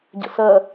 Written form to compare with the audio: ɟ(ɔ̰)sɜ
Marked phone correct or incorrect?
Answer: incorrect